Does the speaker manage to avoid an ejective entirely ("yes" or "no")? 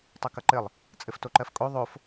no